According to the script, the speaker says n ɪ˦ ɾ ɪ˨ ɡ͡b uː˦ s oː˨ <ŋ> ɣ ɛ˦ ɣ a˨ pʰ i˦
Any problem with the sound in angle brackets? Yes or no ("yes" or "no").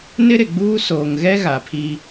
no